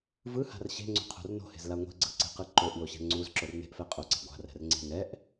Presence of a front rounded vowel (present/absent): absent